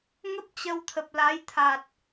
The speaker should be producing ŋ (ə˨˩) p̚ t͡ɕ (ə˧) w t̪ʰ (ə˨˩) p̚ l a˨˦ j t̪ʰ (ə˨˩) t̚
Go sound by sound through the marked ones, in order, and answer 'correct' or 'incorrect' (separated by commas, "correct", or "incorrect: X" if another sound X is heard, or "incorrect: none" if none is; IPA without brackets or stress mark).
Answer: incorrect: ə˦˥, correct, correct, incorrect: a˨˩